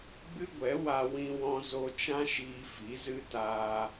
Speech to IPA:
ɡ͡b ɨ˦ ɡʷ ɛ˨˦ w a˧ w ĩ˧ w ɔ̃˧ z o˧ t͡ʃ ã˦ ʃ iː˧ f i˨˦ z ɨ˦ t aː˧

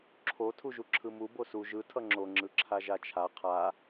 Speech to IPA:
ǁʰ o tʰ u ʒ u ǁʰ ɯ m u b o s u ʒ ɯ tʰ ʌ ŋ͡ǁ o ŋ͡ǁ ɯ ǁʰ a ʒ a t͡ʃʰ a qʰ a

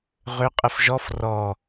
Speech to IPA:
ʁ ʏ qʼ ə f ʒ ɔ f r ɔ

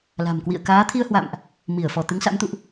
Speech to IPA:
l a̤˨˩ m k w ḭ˧˨ ə̯ k aː˨˦ t̪ʰ i˧ ə̯ h w a̰˧˨ m ʔ | m i˧˩ ə̯ f ɔ˧˩ t̪ ɨ˨˦ ŋ s a̰˧˥ m t̪ ṵ˧˨ ʔ

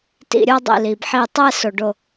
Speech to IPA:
t ḭ˧˩ ɾʲ o˥˧ dˤ ḭ˧˩ l i˩ b ħ i˧˩ tˤ ɛ˥˧ s o˩ ɖ o˧˩

